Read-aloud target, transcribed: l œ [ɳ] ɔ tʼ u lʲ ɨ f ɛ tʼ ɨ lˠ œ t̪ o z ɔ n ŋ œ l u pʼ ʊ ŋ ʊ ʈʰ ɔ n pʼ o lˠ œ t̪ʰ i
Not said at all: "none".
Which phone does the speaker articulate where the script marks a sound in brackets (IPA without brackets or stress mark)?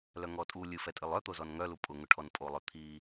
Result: ŋ